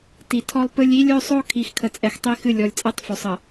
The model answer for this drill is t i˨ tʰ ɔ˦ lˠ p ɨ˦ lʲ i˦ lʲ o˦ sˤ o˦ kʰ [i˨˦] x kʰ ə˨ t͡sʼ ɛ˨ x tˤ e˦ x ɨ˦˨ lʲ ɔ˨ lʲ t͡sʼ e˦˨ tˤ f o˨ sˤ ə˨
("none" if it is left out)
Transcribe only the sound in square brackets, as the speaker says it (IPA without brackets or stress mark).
i˨˦